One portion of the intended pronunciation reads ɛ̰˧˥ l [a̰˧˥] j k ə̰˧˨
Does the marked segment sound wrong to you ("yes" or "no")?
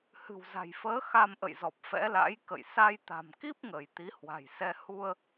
no